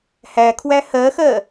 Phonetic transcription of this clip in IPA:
h æ kʰ w æ h ɜ x ɜ

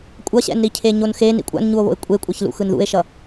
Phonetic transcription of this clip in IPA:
kʷʼ ʌ ɕ ɛ̰ n ɾ i cʰ e ɲ o n x e n ḭ kʷʼ a̰ n ɲ u o̯ β o̰ e̯ kʷʼ e kʷʼ ɛ ç l ṵ x ɯ n ð ṵ e̯ ʃ ʌ

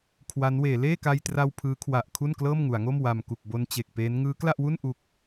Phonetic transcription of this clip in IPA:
kʰ w a˦˥ n w eː˩˦ l eː˥˩ k a˧ j t r a˧ w pʰ ɯː˦˥ kʰ w a˨˩ ʔ kʰ u˥˩ n k l ɤː˥˩ m ŋ u˩˦ a̯ ŋ o˥˩ m w a˨˩ m k u˨˩ k̚ b o˧ n t͡ɕ e˨˩ k̚ p eː˦˥ n ŋ ɯː˦˥ k l a˥˩ ʔ w u˥˩ n ʔ u˨˩ k̚

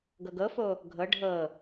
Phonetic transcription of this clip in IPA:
ɡ ɤ ɡ ɤ f o | ɡʱ ɤ ɖʱ ɤ

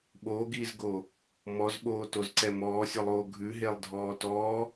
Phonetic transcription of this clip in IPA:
ɓ oː ɡ iː z ɡ o | m ɔ z ɓ oː t o z ǀ ɛ m ɔː sʲ o lˠ oː ɡʱ ʉ ɦ e lˠ dʱ ɔː t ɔː

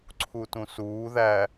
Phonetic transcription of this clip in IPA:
ǀʰ u t ũ s uː ð æ

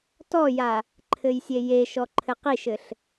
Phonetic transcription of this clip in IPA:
t ɔ j a | ǃʰ ɘ j sʲ e j e ʃ ɔ ǃʰ ɘ q i ʃ ɘ ɬ

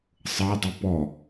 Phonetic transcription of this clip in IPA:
sˤ ɤ dˤ i p ɔ

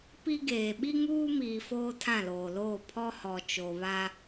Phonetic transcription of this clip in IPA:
p i˦ ɡ eː˨ ɓ i˦ ŋ uː˦ m iː˨ f oː˦ tʰ ã˦˨ l oː˨ l oː˦˨ pʰ ɔ˦ h ɔ˨ t͡ʃ o˨ β a˦

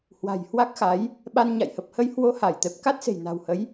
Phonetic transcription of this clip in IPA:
h w a̤˨˩ j h w a˦˥ k̚ x a˨˦ j | ɓ a˧ n ɲ a̰˧˨ j h ə˨˩ p̚ h ə˧ j h w o˧ h a˧˩ j t̪ ɛ˨˩ p̚ k a˦˥ t̚ s e̤˨˩ j n a̤˨˩ w h ə˨˦ j

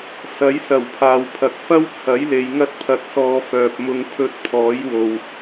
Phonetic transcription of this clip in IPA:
s ɐ˨˥ j s ɐ˨˩ w pʰ aː˨ w pʰ ɐ˨ k̚ f ɐ˥ w t͡sʰ ɐ˨˥ j l e˨ j ŋ ɐ˧ t̚ pʰ ɐ˨ t̚ s ɔː˨ f œː˨ p̚ m ʊ˧ ŋ pʰ ɵ˧ t̚ pʰ ɔː˨˥ j w o˨ w

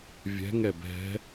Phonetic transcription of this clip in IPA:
vʲ ɛ̤ ŋ ɛ b ɛ̤

